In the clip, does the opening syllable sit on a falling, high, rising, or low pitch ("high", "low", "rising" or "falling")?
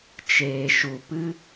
low